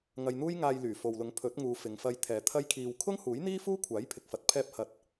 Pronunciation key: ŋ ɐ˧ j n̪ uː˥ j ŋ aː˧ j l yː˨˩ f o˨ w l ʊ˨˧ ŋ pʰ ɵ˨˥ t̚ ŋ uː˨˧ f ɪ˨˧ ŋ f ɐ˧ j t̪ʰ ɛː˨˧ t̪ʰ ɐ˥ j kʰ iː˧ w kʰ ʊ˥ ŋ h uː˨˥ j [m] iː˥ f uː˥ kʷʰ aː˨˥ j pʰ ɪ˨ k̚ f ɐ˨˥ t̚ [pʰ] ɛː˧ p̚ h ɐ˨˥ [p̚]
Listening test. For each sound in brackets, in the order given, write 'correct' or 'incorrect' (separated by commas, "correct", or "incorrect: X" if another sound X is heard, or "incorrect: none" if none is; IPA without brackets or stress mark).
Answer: incorrect: n̪, correct, incorrect: t̚